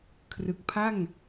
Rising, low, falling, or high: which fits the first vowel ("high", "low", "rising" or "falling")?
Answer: low